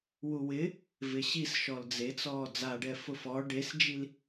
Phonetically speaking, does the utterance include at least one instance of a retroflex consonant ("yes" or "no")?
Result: yes